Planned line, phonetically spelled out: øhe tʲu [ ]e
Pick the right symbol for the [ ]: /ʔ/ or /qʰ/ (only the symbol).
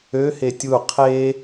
qʰ